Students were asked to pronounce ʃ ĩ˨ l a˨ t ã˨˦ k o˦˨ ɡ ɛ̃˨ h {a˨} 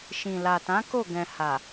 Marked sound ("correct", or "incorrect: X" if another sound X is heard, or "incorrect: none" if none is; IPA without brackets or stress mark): correct